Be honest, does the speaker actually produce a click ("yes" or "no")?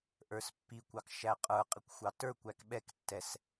no